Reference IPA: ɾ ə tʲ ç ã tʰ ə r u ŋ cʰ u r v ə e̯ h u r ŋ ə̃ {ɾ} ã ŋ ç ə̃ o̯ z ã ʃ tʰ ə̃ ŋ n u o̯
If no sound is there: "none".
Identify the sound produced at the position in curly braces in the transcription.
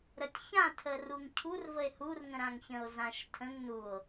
ɾ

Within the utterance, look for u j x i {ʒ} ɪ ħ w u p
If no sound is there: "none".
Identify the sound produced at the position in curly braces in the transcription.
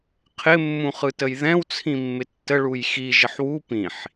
ʒ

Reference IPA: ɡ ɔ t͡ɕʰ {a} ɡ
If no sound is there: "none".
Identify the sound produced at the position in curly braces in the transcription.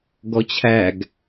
æ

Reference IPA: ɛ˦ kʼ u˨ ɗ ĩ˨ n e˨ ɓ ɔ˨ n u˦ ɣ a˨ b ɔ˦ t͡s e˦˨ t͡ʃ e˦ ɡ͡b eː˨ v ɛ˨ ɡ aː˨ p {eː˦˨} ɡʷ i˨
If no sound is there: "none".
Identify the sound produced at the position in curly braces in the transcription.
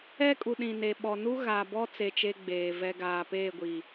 eː˦˨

